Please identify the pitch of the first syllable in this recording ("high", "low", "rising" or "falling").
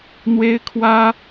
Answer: high